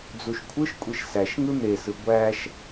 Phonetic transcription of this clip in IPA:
d͡z u ʃ kʷʰ ɯ ʃ kʷʼ i ʃ s æ ʃ ŋ ɯ n̪ e s ɯ ɡʷ æ ʃ

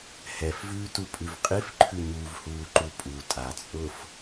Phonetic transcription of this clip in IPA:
h ɛ f v ʉː t u pʼ ʉ v qʼ i f ǃʰ ʉ ɲ uː v h uː ǃ u pʼ u tʼ a t͡sʼ ʊː f

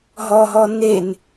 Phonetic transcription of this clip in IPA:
ɦ ɔ ɦ ɔ n e n

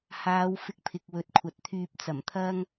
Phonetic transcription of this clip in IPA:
h aː˨˧ w f ɪ˧ k̚ pʰ ɪ˨ k̚ w ɵ˨˥ t̚ kʷʰ ɐ˨ t̚ t̪ʰ yː˧ p̚ t͡s ɐ˨˩ m t̪ʰ ɐ˥ ŋ

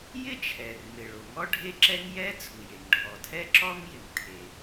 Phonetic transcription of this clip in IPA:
j ɪ˥ t͡ʃʰ ɛ˩ r m ɪ˩ ɭ o˩ ŋ ɔ˥ ɖʱ e˥ ǁ ɛ˥ ŋ j ɛ˥ t͡sʰ u˩ j e˩ ŋ ɖʱ ɔ˩ tʰ ɛ˥ ǁ ɔ˥ ŋ j ɪ˩ ŋ tʰ e˩

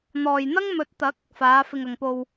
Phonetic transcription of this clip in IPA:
n̪ ɔː˨ j n̪ ɐ˥ ŋ m ɵ˨˥ t̚ t̪ ɐ˨˥ k̚ | f aː˨˧ f ɪ˨ ŋ ɐ˨ ŋ p o˧ w

